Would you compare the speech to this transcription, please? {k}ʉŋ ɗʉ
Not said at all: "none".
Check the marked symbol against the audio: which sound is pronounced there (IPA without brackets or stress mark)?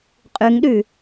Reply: qʼ